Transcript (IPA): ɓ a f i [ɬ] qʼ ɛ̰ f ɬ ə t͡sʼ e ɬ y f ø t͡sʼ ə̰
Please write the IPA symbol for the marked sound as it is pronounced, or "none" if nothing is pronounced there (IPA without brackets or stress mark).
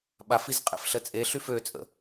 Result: z